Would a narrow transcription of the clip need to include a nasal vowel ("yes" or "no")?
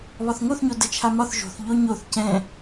yes